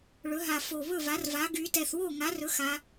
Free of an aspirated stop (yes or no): yes